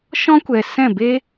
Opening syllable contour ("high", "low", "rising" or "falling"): high